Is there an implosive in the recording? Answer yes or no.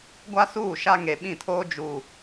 yes